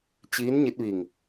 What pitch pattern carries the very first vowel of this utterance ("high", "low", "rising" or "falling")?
rising